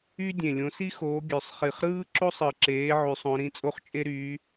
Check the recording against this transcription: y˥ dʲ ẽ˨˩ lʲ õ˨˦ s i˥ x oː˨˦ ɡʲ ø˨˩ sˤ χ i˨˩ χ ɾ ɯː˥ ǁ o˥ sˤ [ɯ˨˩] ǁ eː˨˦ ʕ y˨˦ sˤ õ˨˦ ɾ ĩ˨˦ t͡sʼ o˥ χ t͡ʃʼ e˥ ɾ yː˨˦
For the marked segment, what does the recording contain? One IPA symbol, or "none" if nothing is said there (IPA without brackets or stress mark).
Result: ɯ˨˩